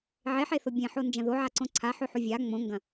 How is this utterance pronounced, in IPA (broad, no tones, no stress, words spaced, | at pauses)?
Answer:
ʕeħeθo bʲẽħond͡ʒɐ̃ ðoʕaǀõ ǀʰaħʉħu vʲa ŋ͡mõŋɡɐ̃